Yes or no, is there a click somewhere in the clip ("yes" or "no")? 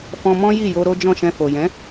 no